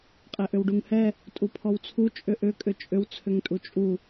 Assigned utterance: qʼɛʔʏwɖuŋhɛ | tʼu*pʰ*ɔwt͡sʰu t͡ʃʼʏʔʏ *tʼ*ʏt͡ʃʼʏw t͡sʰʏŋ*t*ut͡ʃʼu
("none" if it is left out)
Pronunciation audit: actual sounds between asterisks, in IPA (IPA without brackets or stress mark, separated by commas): pʰ, kʼ, tʼ